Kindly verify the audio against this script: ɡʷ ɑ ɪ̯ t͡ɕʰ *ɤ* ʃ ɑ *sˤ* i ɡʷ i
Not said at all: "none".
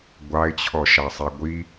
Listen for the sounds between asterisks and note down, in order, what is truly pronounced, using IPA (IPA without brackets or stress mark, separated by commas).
ɔ, sˤ